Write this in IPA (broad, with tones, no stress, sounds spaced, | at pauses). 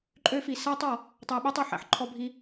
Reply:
ǃʼ ø˦ f i˨ s æ˥ tˤ ɔ˨ | tˤ æ˦ ɓ ɛ˥ tˤ ɔ˩ ħ æ̰˦ ħ ǃʰ ɔ˦ bʱ i˦